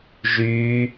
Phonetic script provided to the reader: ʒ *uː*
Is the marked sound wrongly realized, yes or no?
yes